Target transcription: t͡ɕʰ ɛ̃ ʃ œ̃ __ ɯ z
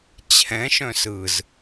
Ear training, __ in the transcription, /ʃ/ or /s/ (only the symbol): s